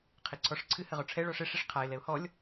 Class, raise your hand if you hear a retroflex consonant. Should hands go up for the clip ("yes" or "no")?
yes